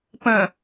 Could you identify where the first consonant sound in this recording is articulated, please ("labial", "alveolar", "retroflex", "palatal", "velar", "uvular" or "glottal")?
labial